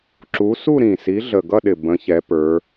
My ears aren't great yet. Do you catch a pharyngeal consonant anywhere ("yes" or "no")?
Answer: no